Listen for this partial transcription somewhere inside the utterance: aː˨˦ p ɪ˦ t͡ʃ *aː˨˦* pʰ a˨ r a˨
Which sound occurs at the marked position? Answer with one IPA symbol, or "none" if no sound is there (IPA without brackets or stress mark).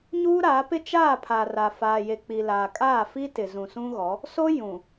aː˦˨